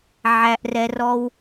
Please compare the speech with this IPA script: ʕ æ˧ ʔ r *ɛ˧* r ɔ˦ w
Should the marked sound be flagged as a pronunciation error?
no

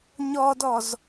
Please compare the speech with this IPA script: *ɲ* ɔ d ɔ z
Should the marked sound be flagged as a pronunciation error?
no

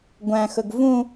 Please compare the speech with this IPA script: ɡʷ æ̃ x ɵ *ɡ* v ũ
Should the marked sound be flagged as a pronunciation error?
no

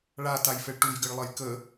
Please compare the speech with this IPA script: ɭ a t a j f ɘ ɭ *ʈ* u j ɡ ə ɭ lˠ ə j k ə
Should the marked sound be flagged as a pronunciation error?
no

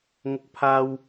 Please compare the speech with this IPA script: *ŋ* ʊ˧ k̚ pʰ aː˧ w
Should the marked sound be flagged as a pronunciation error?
no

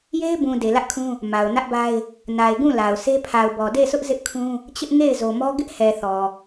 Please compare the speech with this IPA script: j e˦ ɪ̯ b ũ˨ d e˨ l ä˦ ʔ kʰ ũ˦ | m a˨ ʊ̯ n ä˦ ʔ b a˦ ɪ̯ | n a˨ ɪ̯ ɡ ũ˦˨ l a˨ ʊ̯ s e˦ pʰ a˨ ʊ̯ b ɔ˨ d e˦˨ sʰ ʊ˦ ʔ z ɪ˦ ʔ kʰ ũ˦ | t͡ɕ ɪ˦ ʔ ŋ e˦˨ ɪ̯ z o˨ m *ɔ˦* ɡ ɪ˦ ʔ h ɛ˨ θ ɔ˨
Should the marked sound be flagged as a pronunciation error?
no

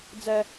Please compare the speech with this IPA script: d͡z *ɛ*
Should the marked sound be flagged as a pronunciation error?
no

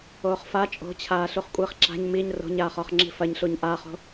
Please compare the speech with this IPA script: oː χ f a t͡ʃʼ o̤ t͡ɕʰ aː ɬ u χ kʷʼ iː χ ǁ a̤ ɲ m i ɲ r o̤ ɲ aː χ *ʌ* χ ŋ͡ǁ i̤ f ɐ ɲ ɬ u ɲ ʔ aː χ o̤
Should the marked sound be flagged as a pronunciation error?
yes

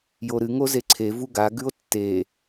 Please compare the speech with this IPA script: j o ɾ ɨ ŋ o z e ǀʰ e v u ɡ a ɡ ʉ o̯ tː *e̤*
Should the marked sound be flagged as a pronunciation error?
yes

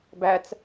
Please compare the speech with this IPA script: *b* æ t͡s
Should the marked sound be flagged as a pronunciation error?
no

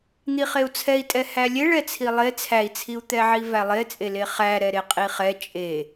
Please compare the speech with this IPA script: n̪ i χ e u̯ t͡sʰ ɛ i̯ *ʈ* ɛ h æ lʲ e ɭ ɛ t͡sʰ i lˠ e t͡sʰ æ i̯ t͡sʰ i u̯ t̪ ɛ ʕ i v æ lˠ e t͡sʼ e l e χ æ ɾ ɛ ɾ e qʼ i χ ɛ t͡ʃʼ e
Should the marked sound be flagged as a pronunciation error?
yes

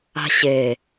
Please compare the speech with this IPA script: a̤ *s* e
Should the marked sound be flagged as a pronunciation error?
yes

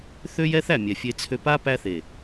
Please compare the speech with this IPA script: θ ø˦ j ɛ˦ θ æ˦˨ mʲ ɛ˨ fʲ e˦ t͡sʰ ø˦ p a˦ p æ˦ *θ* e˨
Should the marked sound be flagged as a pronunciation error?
no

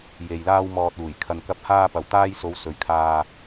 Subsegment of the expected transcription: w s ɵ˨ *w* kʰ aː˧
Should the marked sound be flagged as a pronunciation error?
yes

